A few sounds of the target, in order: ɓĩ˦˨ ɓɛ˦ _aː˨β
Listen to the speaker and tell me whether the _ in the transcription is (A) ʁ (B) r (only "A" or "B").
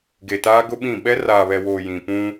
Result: B